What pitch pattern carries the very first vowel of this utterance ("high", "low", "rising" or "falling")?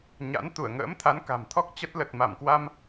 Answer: rising